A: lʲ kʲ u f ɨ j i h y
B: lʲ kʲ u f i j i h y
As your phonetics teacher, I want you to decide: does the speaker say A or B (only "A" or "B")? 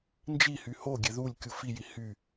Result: B